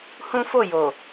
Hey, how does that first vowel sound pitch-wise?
high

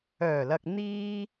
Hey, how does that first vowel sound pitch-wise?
low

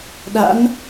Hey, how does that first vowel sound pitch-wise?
rising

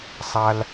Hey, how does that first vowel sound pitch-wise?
high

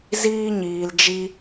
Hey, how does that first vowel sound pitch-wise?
high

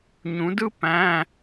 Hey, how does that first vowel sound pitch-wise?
rising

